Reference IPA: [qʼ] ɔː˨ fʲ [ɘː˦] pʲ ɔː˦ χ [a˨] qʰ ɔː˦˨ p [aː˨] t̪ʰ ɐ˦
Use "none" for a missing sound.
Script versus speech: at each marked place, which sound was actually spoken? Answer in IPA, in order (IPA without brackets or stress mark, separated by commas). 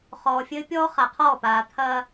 χ, ɘː˦, a˨, aː˨